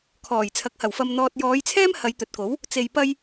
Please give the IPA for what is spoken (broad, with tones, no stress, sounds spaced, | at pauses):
kʰ ɔː˨˩ j t͡sʰ ɐ˨˥ k̚ h ɐ˨˩ w f ɐ˨ m n̪ ɔː˨ t̚ j ɔː˨˧ j t͡sʰ ɛː˥ m h ɐ˨˧ j t̪ ɵ˨ t̚ k o˨˥ w | t͡s e˧ j p ɐ˥ j